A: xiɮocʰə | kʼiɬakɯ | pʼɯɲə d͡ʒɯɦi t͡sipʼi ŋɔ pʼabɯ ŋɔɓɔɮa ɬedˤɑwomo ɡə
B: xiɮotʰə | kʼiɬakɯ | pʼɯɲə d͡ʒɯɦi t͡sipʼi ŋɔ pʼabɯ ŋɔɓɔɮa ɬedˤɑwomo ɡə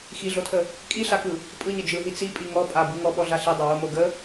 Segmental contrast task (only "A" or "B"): B